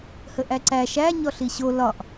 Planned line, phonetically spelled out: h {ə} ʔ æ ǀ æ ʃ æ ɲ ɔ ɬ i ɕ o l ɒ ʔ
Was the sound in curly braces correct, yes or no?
yes